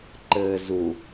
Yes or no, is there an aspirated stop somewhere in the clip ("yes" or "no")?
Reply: no